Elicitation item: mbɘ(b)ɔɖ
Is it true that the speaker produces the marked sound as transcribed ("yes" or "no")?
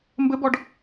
yes